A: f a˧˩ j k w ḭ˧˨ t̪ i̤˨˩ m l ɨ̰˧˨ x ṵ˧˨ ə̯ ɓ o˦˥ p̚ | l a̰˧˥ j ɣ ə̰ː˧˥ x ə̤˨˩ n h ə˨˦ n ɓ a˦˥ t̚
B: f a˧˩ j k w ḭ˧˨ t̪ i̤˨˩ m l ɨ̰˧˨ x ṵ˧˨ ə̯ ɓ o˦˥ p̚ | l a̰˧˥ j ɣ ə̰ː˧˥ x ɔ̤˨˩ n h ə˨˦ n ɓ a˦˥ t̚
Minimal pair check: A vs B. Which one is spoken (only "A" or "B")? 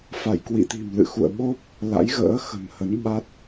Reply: A